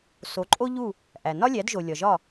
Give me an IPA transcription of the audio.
so˩˥ǃʼo˥ʎu˥˩ | ʔæ˩ nɒ˥lʲæ˩˥dʒo˩ lʲɒ˩ʒɒ˥˩

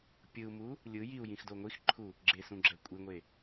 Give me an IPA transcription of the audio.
pʲɯu̯mu | lʲɯ jiu̯jĩxdo ŋʷixǃʰu | ɡ͡ǁesũɡ͡ǁɛ kʷʼiŋʷe

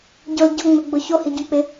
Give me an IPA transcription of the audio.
ɟʊl ɟʊŋ͡mɪɡ͡bʊ çohiɟok͡pɪ

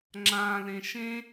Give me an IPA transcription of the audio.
ŋ͡ǁã lẽʃẽ

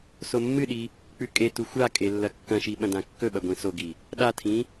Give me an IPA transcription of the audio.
somːɨɗi | k͡pʉkʼetu xʷakʼe lːɐkːɐ̃ʃi ɓɐ̃dãkːɵɓɐ ɡʷĩsoɡi | ɗatʰĩ

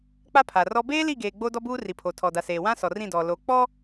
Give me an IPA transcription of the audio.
k͡pa˦pʰa˨rɔ˦ beː˦li˦˨ɡeː˨ ɡ͡bo˦dɔ˦buː˦ ri˨pʰo˨tʰɔ˨da˨ seː˨ wã˦sɔ˨ rĩ˦˨dɔ˨ lo˨k͡pɔ˦

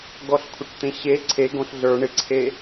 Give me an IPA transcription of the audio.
ɡɔɬkʷʰɪʈt̪ẽɕe ǀʰe ɡõɬɮə˞ ɳɪǀʰe

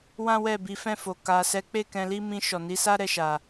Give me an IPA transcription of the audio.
wã˦wɛ˦˨ bi˨˦fɛ̃˦˨fo˨ ka˨sɛ˨˦k͡pe˦˨ kɛ̃˧li˦ mĩ˧ʃɔ˨ni˨˦sa˦ ɾɛ˦˨ʃa˨

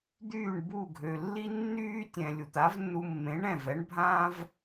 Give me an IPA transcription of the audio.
d̪yː˥˩ɳbu˥˩ɡʱø˩ lːi˥nːyː˥tʲɛ̃˩ lʲu˩t̪a˩˥vnːu˧mːẽ˩˥ ɳɛ̃˥˩vɛ˩˥ɳbʱãː˥v

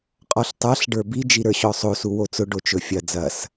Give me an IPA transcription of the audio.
qʼɔɬtˤaɬ ɖə˞bi d͡ʒiɾə˞ɕɔsˤo suwot͡sʊ ɖot͡ʃɵfʲɐ d͡zɐs

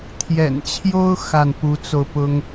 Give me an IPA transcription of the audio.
t̪ʰjɛ̰˨˩nt͡ɕʰjo˥ʊ̯ xa˥˩npu˧˥t͡so˧ʊ̯pʊ˥ŋ

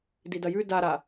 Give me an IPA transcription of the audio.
didɐjʉ daɾa

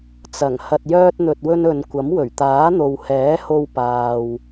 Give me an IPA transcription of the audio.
t͡sɐ˨˩ŋ hɐ˨t̚ jœː˧t̚n̪ɵ˨t̚wɵ˧n ɵ˨nkʷɐ˨˥m wɵ˨˩ɥt̪aː˨˥n̪o˨w hɛː˨˥ho˧wpaː˨w

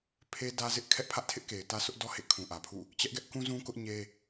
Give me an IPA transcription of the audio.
pʰe˦dä˦zɪ˦ʔ kʰɛ˦ʔpʰä˦ʔtʰɪ˦ʔke˨ɪ̯ tä˦sʊ˦ʔdɔ˦ hḛ˦˨ kʰũ˨ʔä˨pʰṵ˦˨ | t͡ɕɛ˦ʔɡɛ˦ʔ kũ˦ zũ˦kʊ˦ʔ ɲe˦

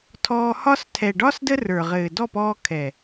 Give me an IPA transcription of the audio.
tʰɔː˧hɒ˦s tʰɛ˨ɖɒ˦s də˦rə˞˨ʁɘː˨ dɔ˦˨pɔː˧ kʰɛ˨

